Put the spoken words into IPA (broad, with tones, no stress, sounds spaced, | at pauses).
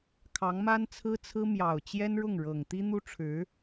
kʰ ɑ˧˥ ŋ m a˥ n t͡sʰ ɹ̩˥ t͡sʰ ɹ̩˥ m j ɑ˨˩ ʊ̯ t͡ɕ j ɛ˥ n ɻ ʊ˥˩ ŋ ɻ ɤ˨˩ ŋ t̪ i˥ n̪ u˥ ʈ͡ʂʰ ɻ̩˧˥